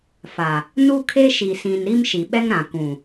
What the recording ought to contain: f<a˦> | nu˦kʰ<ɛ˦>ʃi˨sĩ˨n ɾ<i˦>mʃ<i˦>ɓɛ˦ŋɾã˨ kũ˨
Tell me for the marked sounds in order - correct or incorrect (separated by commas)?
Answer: incorrect, incorrect, correct, incorrect